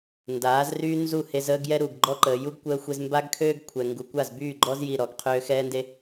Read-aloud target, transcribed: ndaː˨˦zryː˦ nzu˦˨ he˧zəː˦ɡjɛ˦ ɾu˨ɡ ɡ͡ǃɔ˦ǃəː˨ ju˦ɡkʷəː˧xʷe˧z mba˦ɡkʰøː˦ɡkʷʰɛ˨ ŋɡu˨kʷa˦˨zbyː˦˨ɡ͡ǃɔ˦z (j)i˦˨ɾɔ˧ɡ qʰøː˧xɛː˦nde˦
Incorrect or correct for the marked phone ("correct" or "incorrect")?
correct